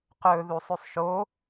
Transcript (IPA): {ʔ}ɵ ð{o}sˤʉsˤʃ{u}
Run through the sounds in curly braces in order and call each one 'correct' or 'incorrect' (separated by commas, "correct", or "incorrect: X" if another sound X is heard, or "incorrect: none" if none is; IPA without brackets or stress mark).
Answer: incorrect: q, incorrect: u, incorrect: o